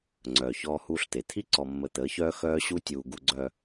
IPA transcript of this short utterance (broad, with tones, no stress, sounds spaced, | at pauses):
ŋ͡ǀ œː˨ ç ɔː˦ h uː˦ ɬ t̪ e˨ t̪ʰ i˦ ǀ ɔ˨ mː ə˨ t̪ əː˨˦ ç œː˦ x œː˦ ɕ u˦ tʲ uː˨ ɡ u˨ ɡ͡ǀ œ˨